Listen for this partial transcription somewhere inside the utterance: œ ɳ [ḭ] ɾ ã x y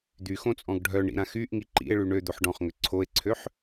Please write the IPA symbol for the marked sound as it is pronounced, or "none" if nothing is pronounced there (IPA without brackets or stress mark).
ḭ